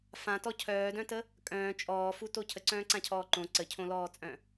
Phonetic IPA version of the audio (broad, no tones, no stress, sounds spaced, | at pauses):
f ã t ɔ cʰ œː d œ̃ t ə | kʼ œ̃ː t͡ʃʼ ɔː f u t o cʰ ə ǀ œ̃ː ǀ ã cʰ ɔː ǃ õ ǀ ə cʰ õ l ɔː t͡sʼ œ̃